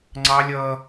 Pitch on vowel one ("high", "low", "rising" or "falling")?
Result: high